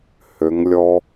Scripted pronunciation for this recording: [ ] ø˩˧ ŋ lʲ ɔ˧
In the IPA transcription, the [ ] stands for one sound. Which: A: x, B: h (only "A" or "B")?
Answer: B